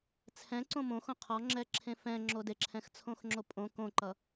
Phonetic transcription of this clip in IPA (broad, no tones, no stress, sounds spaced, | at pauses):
t͡sʰ ɛ̃ ǀ õ m õ x õ qʰ ɔ ŋ͡ǁ ɛ ǁʰ ẽ f ɛ̃ ŋ͡ǁ o d e ǁʰ ɛ̃ x t͡sʰ õ x ŋ͡ǁ o pʼ õ k õ ǃ ʌ